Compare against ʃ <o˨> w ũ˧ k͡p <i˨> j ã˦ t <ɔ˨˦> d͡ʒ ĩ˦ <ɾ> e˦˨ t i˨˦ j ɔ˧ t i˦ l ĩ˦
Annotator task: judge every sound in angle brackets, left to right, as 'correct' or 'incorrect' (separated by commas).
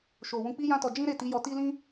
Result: correct, incorrect, incorrect, correct